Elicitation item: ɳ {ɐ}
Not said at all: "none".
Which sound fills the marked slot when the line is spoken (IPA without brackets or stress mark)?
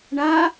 a